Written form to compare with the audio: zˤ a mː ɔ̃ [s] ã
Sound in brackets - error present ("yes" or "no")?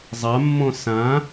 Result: no